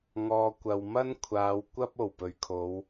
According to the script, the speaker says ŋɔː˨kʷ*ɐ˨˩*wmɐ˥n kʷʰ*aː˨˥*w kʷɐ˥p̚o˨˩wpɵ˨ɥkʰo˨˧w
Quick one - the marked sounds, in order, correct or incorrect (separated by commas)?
incorrect, incorrect